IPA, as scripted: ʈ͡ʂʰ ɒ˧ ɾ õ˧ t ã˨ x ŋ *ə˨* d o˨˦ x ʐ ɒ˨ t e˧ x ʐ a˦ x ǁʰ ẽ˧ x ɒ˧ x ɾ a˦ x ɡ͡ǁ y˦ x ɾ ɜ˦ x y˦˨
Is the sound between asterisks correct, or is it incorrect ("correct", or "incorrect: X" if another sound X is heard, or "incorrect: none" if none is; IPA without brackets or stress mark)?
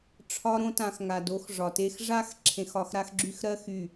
incorrect: a˨